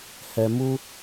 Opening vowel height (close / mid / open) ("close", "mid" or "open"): mid